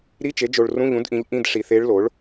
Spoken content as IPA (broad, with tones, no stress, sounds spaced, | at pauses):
ɾ i˧˥˧ t͡ʃ e˩˥ d͡ʒ o˨ ɭ r ũ˧˥˧ ʎ ũ˩˥ d ʔ ĩ˩˥ ʎ ʔ ĩ˧˥˧ d ʂ i˨ θ e˧˥ ɭ l o˩˥ ɭ